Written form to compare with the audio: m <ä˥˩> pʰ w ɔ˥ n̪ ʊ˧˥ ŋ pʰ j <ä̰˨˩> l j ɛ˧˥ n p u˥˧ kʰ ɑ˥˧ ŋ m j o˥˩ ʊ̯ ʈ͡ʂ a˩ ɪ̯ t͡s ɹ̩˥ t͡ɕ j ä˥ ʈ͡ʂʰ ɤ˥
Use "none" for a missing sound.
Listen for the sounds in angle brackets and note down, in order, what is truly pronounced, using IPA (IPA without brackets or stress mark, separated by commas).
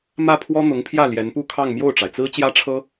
ä˥˩, ä˥˩